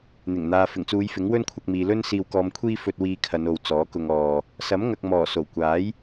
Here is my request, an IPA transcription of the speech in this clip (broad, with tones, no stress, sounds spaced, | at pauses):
n̪ ɪ˨˩ ŋ n̪ aː˨ f ɪ˨˩ ŋ t͡s uː˨˧ j f ɪ˨˥ ŋ w ɵ˥ n kʷʰ ɐ˧ k̚ m iː˨ l ɵ˥ n s iː˧ w k ɔː˧ m kʷʰ iː˥ f ɵ˧ t̚ w iː˧ kʰ ɐ˨˧ n o˨ w t͡s ɔː˨˥ k ʊ˧ ŋ ɔː˧ | s ɐ˨˥ m ŋ ɐ˨ k̚ m ɔː˨˩ s o˨˩ w kʷ aː˨˥ j